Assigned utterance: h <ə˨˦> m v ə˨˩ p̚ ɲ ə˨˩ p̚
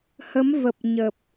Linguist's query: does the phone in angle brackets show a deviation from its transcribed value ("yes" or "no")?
no